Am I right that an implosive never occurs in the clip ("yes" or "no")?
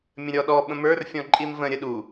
no